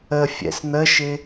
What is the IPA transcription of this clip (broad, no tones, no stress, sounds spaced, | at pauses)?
ə fʲ ɛ̰ s n̪ ə ʃ ɪ